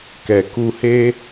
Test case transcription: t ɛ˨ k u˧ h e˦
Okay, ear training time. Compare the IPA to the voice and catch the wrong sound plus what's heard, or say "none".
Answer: t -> k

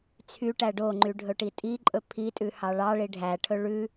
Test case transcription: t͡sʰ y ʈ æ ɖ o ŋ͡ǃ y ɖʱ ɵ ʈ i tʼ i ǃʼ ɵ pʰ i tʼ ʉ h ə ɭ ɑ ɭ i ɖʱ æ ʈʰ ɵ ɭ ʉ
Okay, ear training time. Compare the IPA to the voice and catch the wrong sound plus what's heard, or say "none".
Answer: ə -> ɑ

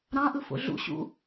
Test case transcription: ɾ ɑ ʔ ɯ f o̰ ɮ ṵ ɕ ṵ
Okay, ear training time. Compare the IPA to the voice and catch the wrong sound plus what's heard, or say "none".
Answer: ɑ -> ɑ̃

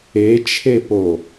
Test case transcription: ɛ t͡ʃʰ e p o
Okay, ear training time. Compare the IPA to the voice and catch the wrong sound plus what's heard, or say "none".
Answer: ɛ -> e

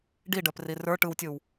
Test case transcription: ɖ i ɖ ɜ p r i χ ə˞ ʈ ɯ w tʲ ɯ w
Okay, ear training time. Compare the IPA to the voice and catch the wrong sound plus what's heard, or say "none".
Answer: χ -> r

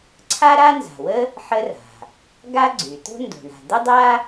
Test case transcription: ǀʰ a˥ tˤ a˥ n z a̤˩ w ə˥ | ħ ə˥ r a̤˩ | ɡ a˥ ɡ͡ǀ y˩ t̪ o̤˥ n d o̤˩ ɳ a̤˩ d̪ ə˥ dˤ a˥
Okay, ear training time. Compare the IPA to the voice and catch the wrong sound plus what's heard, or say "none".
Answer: tˤ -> ɾ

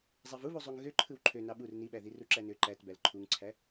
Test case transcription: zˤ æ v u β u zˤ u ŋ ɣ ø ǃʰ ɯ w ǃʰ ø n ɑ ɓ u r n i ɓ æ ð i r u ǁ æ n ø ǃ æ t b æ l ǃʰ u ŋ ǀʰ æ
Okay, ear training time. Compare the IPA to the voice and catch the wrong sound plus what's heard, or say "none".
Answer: none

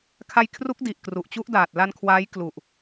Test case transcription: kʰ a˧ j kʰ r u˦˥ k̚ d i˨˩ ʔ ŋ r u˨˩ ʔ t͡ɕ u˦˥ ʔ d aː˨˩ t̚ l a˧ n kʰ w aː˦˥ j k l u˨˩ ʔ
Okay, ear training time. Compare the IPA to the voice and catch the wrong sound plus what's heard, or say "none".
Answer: ŋ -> k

